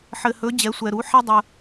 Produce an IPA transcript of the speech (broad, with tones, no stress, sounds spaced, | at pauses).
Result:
ħ ɘ˧ h ɵ˧˥ d͡ʑ ɛ˧˥ sʷ ɛ˧ ɾ u˧˥ ħ ɛ˥ dˤ ə˧